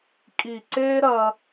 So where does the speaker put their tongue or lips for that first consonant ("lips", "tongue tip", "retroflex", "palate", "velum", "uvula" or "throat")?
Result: velum